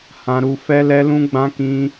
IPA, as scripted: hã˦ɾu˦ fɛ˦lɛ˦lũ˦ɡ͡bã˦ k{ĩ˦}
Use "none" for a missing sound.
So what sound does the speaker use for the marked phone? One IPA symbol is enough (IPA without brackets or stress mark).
ĩ˦